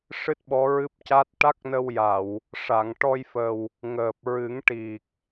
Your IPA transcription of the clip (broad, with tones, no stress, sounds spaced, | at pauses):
ʂ ɨ˦˥ t̚ ɓ ɔ˧˥ ɹ ɨ˦˥ p̚ c a˦˥ t̚ ʈ a˦˥ k̚ n ə˧ w j a˨˩˨ w | ʂ a˨˩˨ ŋ ʈ ɔ˧ j f ə˨˩ w | ŋ əː˨˩ p̚ ɹ ɨ˨˩˦ ŋ ʈ i˨˩ k̚